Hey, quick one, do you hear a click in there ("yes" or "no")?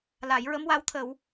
no